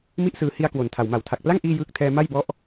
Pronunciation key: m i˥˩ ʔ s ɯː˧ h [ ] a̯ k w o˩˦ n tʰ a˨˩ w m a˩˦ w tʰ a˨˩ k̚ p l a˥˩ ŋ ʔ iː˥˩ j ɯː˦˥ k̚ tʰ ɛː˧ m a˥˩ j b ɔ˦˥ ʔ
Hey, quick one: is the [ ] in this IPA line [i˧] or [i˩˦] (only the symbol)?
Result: i˧